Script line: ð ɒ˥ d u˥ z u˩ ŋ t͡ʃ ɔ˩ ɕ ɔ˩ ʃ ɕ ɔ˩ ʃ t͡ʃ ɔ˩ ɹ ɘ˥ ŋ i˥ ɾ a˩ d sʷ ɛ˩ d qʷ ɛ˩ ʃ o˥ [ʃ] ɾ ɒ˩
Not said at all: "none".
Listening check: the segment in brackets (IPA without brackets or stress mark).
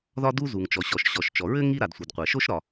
ʃ